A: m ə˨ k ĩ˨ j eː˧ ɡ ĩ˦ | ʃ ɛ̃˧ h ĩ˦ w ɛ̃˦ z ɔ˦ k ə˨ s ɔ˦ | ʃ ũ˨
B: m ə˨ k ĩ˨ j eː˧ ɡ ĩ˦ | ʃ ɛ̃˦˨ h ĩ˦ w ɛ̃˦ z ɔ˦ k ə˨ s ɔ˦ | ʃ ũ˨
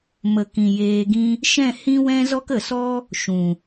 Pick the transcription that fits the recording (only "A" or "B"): B